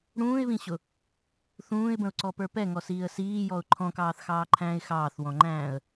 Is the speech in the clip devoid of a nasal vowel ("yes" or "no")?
no